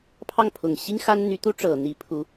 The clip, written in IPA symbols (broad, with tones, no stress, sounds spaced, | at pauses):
pʰ ɑ˥˩ ŋ pʰ ʊ˨˩ ŋ ɕ i˥ ŋ x a˥ n n̪ y˧˥ t̪ u˥ ʈ͡ʂ ɤ˨˩ n̪ i˧˥ pʰ u˧˥